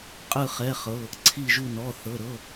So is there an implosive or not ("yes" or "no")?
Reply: no